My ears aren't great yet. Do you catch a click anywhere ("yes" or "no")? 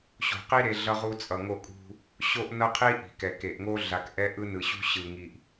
no